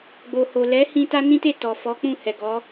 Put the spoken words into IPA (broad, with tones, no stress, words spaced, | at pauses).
ɡ͡bo˨ho˨ lɛ˨˦ hĩ˧ta˦nĩ˦te˦˨ tɔ˨fɔ˨˦k͡pũ˦˨ hɛ˨ɡɔ˨˦